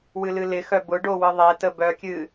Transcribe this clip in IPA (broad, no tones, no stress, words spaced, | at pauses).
wɨlɨlɪxœ bʊɖo wɨðˤetə bœkʲɨ